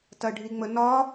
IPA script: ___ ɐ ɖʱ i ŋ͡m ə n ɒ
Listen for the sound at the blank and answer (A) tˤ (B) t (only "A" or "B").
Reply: B